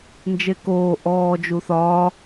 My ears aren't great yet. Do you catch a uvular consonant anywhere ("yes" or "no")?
no